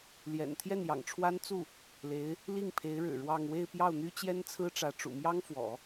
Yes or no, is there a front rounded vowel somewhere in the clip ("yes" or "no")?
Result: yes